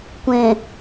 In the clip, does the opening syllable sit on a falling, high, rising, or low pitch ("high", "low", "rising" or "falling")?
low